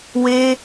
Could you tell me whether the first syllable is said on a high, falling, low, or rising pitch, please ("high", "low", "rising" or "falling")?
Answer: high